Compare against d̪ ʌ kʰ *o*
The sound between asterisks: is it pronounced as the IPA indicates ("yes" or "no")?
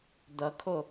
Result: yes